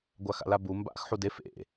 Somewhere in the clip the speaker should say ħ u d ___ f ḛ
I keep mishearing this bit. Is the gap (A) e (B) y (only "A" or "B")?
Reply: A